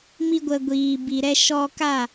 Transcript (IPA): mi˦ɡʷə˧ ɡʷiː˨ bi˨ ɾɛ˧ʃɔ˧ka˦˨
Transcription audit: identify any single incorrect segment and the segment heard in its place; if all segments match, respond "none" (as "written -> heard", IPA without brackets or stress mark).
none